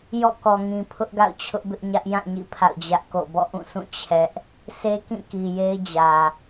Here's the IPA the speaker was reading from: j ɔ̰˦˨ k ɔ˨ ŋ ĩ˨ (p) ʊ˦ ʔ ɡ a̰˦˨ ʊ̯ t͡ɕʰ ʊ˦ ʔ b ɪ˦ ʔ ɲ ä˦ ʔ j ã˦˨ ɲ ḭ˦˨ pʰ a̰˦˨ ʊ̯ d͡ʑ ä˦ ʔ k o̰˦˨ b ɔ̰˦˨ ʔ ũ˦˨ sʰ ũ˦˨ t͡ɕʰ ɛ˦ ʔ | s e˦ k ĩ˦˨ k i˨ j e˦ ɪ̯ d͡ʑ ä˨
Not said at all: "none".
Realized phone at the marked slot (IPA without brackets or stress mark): pʰ